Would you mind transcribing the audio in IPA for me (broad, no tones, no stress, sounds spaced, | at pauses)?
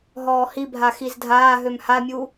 ɦ ɔː h i bʱ a x i z dʱ aː ɦ ø m h a mʲ u